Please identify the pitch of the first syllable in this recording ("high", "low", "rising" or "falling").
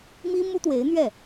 high